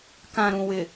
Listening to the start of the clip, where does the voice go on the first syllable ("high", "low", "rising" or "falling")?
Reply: low